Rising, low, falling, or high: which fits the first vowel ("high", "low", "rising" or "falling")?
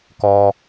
low